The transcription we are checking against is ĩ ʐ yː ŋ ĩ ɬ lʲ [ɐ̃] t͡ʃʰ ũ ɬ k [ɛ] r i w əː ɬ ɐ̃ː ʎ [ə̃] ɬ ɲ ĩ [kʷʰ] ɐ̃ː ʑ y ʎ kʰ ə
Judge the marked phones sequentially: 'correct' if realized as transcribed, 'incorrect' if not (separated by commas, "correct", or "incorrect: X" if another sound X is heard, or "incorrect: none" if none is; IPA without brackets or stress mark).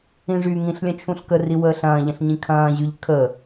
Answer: correct, incorrect: ə, correct, incorrect: kʰ